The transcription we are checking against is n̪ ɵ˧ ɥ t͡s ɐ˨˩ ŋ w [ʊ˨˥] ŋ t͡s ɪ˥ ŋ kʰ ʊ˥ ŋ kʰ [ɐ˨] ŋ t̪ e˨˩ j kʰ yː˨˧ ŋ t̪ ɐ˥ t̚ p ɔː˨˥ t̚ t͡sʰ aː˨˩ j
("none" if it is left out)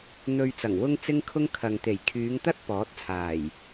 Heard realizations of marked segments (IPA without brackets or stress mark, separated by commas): ʊ˥, ɐ˨